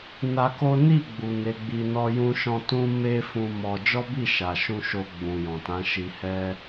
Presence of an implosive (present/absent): absent